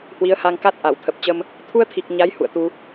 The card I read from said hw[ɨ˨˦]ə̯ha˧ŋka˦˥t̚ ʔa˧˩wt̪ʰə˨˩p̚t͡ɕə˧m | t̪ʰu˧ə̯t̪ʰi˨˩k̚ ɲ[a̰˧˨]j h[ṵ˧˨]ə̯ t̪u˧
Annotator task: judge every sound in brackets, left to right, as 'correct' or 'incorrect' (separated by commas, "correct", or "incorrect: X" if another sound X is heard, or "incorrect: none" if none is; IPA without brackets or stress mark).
incorrect: i˨˦, incorrect: a˨˦, correct